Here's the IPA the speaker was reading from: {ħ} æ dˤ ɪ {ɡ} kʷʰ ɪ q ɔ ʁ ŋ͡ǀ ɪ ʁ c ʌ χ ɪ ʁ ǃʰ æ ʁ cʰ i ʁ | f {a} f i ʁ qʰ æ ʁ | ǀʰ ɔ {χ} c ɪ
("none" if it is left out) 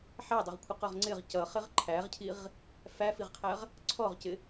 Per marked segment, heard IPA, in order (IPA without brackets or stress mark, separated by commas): ħ, ʁ, æ, ʁ